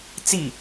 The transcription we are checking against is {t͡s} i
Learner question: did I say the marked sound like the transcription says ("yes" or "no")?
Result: yes